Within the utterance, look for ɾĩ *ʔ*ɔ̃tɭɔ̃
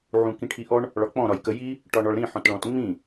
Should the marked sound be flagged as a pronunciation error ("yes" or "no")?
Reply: yes